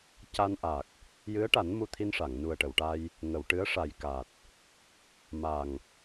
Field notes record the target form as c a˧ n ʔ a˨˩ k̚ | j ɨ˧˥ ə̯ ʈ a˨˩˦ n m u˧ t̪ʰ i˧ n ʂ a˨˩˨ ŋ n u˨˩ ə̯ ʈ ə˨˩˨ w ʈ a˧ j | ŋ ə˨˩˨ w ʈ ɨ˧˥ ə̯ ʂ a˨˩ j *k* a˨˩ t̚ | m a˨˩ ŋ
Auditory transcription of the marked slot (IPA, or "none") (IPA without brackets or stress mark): k